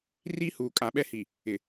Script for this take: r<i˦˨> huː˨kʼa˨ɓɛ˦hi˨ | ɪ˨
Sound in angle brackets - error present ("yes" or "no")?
yes